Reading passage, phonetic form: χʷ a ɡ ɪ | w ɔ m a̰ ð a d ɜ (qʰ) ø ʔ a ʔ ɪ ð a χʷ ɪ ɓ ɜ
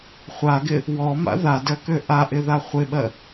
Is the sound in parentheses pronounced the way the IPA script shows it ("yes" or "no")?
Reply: no